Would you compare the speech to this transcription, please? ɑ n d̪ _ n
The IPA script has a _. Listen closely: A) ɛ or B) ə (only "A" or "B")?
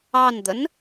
B